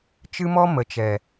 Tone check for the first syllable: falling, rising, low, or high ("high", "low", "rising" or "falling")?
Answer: high